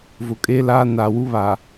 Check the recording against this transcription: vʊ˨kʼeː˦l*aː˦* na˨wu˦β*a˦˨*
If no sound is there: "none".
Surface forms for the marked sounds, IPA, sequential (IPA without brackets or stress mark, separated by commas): aː˦, a˨